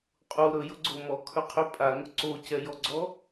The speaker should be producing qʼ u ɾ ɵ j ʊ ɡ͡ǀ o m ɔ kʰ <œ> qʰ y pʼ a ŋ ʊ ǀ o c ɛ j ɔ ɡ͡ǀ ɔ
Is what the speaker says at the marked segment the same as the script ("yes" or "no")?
no